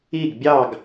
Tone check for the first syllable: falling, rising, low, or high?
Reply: falling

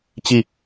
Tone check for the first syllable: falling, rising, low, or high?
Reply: falling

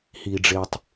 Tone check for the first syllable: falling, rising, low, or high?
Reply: low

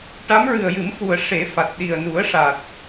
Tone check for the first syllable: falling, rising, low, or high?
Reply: rising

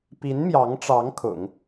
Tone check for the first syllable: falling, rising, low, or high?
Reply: rising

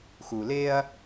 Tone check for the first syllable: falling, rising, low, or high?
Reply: low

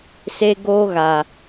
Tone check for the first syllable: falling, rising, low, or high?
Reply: high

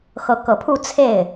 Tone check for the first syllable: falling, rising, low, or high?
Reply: rising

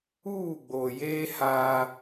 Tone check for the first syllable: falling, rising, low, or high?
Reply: falling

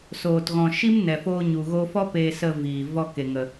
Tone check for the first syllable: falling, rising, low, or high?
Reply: low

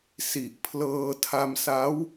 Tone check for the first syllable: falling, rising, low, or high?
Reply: low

